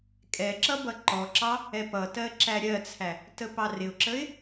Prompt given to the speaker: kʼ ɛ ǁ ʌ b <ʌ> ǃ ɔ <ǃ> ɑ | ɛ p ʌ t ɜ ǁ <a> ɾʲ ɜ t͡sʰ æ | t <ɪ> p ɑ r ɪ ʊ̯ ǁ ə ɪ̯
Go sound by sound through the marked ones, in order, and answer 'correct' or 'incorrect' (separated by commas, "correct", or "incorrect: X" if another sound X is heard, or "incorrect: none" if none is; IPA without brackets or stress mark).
correct, incorrect: ǁ, incorrect: æ, incorrect: ə